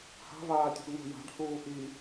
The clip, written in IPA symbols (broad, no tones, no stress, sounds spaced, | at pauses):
h a̤ v aː tʲ ṳ ɡ n̪ o̤ j a̤ ɖ h uː ʔ i